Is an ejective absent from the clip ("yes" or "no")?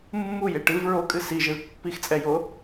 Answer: no